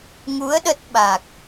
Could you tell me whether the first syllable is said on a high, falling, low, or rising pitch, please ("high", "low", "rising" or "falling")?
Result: rising